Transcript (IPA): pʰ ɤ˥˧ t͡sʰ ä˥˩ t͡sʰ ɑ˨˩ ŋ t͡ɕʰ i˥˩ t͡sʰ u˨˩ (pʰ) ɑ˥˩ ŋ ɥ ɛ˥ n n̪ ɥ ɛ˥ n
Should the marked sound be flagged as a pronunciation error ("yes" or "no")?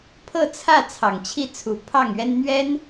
no